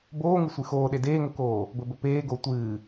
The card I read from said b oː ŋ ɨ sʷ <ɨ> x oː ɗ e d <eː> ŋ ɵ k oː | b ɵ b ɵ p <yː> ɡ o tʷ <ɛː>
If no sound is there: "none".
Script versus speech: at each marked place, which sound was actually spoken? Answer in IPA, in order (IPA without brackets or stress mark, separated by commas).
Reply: ɨ, eː, eː, ɨː